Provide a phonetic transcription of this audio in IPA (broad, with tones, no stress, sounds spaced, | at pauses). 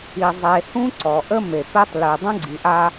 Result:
i˨ zˤ e˨ h ũ˦ ǀ ɔ˨ ʔ ə˦ m e˨ p e˦ tˤ l y˨ dˤ ə̃˦ ɡ͡ǀ i˨ ʔ a˦